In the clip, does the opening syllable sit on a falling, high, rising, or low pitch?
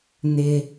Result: high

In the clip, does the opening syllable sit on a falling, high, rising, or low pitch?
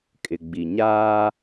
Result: low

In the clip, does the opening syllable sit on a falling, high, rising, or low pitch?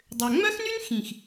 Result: low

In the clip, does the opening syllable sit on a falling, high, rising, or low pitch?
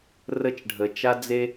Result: high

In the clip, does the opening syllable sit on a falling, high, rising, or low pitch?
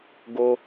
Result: high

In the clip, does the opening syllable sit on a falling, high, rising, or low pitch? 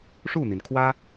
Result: falling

